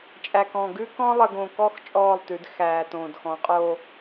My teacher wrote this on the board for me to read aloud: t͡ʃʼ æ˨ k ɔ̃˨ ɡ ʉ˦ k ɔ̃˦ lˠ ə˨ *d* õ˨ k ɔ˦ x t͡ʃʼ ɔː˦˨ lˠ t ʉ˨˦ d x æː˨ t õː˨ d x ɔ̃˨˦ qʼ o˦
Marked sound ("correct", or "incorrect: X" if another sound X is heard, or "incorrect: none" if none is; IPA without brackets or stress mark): incorrect: ɡ